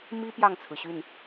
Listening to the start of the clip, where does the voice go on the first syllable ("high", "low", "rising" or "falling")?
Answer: high